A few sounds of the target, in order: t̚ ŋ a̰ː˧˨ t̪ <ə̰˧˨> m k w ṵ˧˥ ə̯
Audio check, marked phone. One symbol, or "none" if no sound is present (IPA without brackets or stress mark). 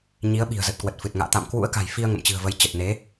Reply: a̰˧˨